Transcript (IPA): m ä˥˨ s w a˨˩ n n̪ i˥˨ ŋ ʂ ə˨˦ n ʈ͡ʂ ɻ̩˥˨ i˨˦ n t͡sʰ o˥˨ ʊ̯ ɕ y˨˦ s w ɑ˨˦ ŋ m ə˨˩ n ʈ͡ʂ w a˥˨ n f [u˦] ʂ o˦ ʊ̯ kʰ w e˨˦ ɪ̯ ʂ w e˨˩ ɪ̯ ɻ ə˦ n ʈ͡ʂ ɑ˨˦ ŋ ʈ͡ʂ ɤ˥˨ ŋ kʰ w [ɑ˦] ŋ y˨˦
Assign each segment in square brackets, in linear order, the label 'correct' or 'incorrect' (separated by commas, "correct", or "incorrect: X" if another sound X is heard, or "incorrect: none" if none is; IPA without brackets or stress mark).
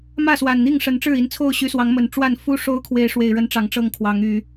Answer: correct, incorrect: ɑ˨˦